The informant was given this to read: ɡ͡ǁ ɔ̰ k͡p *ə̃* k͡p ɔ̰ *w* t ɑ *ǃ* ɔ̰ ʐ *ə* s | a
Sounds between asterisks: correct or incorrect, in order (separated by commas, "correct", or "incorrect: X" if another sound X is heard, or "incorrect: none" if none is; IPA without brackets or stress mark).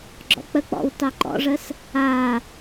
incorrect: ə, correct, correct, correct